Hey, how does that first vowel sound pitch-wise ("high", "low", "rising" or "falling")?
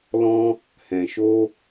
high